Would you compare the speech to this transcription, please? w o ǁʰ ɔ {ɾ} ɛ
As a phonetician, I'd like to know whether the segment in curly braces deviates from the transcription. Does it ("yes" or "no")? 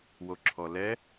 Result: yes